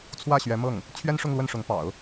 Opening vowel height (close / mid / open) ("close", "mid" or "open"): open